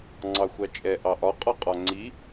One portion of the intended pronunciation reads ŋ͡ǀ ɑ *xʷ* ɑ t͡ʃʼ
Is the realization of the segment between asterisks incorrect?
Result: no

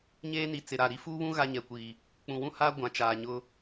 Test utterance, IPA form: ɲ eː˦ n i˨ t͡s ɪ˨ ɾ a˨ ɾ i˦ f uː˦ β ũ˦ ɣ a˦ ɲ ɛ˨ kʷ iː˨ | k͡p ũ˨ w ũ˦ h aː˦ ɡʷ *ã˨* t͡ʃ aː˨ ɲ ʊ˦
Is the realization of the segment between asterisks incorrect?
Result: no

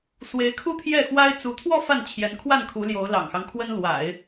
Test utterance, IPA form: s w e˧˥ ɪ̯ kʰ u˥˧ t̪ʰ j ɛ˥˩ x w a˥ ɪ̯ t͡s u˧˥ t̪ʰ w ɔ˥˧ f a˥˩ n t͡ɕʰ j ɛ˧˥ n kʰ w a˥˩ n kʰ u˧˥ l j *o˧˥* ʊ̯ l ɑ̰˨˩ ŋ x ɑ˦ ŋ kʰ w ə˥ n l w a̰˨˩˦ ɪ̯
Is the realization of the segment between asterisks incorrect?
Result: no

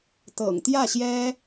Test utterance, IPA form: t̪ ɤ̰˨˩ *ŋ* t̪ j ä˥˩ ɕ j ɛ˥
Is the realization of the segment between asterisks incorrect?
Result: no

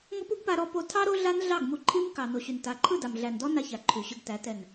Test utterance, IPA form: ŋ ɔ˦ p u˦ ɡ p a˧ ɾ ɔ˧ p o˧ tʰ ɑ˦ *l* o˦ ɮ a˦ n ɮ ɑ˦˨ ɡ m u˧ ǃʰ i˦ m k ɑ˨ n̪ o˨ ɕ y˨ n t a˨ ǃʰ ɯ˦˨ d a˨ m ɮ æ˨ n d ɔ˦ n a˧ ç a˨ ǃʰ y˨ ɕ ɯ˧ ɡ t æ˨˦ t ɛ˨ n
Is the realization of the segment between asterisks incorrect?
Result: yes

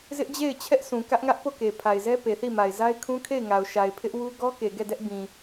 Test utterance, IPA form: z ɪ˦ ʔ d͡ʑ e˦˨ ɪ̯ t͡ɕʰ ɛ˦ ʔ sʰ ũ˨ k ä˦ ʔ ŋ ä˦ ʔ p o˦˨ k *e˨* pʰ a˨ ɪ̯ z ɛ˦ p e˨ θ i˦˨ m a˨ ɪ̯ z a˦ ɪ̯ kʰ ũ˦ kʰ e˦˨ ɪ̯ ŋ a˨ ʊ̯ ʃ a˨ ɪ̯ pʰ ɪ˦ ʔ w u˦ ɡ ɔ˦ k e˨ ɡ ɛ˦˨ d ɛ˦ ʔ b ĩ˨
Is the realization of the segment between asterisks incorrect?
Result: no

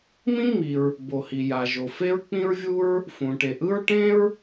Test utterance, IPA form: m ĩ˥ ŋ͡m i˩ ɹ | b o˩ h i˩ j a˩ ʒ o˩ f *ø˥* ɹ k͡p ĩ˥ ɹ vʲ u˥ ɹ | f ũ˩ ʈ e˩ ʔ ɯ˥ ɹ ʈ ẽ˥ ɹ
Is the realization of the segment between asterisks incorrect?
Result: yes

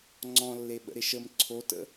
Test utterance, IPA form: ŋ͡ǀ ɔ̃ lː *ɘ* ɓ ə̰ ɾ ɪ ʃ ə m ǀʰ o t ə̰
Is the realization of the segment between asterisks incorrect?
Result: yes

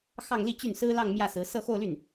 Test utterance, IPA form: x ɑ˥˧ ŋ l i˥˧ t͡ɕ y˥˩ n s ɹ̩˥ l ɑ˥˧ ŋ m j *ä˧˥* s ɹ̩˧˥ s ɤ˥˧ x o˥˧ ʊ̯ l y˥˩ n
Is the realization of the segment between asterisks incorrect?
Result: yes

